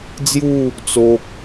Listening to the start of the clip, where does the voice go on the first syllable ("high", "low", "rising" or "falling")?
falling